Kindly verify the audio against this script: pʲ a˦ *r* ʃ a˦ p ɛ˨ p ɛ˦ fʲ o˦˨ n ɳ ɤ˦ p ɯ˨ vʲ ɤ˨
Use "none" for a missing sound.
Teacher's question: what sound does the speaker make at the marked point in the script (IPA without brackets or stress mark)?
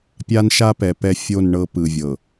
n